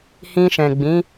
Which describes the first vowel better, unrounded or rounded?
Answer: unrounded